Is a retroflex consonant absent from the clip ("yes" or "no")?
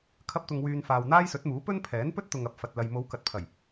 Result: yes